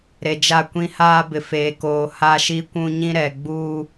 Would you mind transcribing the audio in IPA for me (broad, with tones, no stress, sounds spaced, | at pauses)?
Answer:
ɾ e˨ d͡ʒ a˦˨ kʷ ĩ˦ h aː˦ b ɪ˨ f eː˨ k oː˨ h a˦ ʃ i˦ kʷ ũ˦ ɲ ĩ˦ ɾ ɛ˨ ɡ͡b uː˦